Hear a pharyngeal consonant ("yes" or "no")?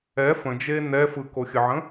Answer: yes